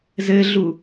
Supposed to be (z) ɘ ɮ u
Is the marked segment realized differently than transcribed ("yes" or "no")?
no